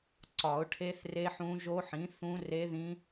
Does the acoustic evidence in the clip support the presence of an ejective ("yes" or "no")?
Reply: no